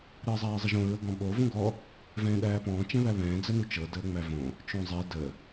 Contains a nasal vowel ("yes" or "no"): yes